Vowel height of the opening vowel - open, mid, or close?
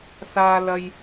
open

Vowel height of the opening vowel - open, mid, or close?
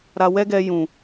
open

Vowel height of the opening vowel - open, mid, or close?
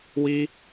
close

